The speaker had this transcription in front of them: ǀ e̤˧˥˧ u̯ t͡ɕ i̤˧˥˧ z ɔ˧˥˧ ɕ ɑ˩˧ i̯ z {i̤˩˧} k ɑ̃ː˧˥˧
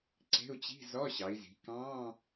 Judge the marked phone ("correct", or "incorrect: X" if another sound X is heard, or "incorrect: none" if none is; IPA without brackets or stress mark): correct